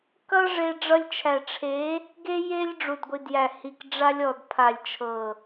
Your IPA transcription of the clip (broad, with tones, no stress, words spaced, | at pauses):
kʌ˦ʐe˧ ɖ͡ʐʌ˧lʲt͡ʃʰæ˨ʈ͡ʂʰe˨˦ | ɡe˦je˦lʲ ɖ͡ʐu˨dɡʷi˨djæ˨hi˨k ɖ͡ʐa˧lʲɔ˨d pʰa˨lʲt͡ʃʰɤ˨